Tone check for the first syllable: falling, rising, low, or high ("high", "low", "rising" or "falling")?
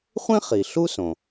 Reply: high